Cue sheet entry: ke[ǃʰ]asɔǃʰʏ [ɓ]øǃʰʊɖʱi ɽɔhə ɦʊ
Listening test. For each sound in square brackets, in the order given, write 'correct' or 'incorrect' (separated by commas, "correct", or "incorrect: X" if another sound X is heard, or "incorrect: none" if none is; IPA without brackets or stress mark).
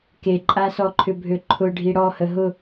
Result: incorrect: ǃʼ, incorrect: bʱ